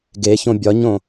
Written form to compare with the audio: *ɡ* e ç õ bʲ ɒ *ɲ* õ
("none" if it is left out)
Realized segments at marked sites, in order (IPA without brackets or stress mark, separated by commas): ɡ, ɲ